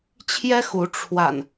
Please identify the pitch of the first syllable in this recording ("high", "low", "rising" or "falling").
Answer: high